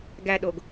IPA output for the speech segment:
ɡæɗoɡ

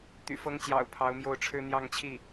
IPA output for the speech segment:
t̪y̰˨˩fɤ˧˥ŋt͡ɕjɑ̰˨˩ʊ̯ pʰɑ˧˥ʊ̯mjo˥˩ʊ̯ʈ͡ʂʰɻ̩˥ n̪jɑ˥˧ŋt͡ɕʰi˥˩

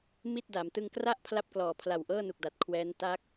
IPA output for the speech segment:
mi˥˩t̚da˩˦m tɯ˧ŋkra˥˩ʔ pʰla˥˩p̚klɔː˨˩pʰla˨˩w ʔɤː˥˩nu˨˩k̚da˨˩t̚ kʰwɛː˦˥n ta˦˥k̚

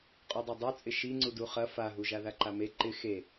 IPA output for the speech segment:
qʼodˤadˤut͡sʼɪ ʃiŋ͡ǀudu χɐ faɦu ʒaðaǃame ǃɪ xe

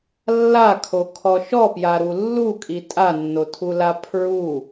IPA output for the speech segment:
lːakʰokʰɔ ʃɔpjaɾu lːukʼi tʼanːotʰula pʰɹu

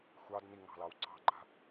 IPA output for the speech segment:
xʷɑdni ŋɑ̤lɑwǀɑ̤ɡ͡ǃa̤

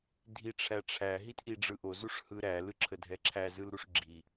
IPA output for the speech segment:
dʱiʈ͡ʂʰæʈ͡ʂʰæ ɦitʔiɖ͡ʐɯʔo zuʂhɯɾæ lɯǁʰədʱɛǁʰæ zɯlɾuʂɡ͡ǁi

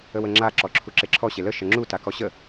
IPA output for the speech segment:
əwəŋ͡ǁa ǁɔǁʰuǁeǁʰɔ ɕelə ʃəŋ͡ǁu takɔɕə

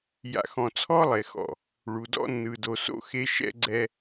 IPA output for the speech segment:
ja̰˨ xɔ̃˨t͡sʰɔ˦lˠe˨xɔ̰˨ | ɭu˨dɔ̰˦ nːɯ˨do˨ so̰˦xe˦ ʃɛ̰˦ɡ͡ǀɛ˦

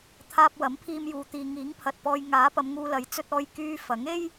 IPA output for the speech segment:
t̪ʰaː˧p̚wɐ˨˥mpʰiː˧mjuː˨ t̪iː˨ŋiː˨˥ŋpʰɐ˨t̚pɔː˧j ŋaː˨˥ pɐ˨˧mŋuː˧lɐ˨˥j t͡sɵ˧t̚ɔː˧j kyː˧ fɐ˨˥ŋe˥j

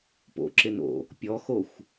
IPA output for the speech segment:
po̰ǁɪno̰ | pʲɔxoxʷ

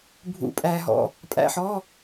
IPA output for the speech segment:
bʱṵ˩˧˩pʼæː˩ɦɔ̰˩ | pʼæ̰˩˧˩ħɔ˩˧˩

